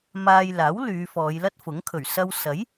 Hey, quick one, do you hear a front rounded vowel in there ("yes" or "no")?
yes